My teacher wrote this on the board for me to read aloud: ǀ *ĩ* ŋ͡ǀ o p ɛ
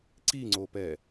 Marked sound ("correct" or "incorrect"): incorrect